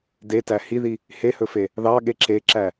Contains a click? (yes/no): yes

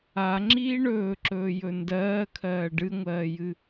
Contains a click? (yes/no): yes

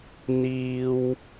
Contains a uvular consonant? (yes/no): no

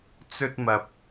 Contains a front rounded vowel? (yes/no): no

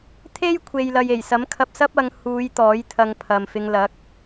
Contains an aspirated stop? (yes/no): yes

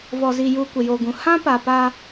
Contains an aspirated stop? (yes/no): no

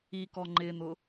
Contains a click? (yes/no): yes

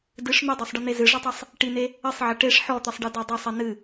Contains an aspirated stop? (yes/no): no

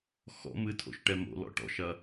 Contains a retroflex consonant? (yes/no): yes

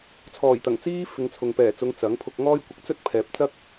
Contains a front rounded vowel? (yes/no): no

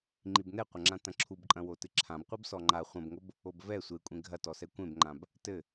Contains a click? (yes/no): yes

